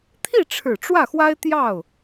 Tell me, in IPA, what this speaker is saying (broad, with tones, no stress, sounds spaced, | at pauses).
t̪ʰ i˥˩ ʈ͡ʂʰ ɻ̩˨˩ ʈ͡ʂ w ä˥˩ x w a˥ ɪ̯ t̪ j ɑ˥˩ ʊ̯